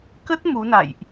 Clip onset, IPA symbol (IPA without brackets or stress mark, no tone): k